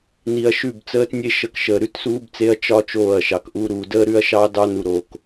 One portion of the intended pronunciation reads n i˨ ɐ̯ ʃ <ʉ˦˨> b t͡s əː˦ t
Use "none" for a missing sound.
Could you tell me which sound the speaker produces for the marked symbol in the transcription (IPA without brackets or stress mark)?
ʉ˦˨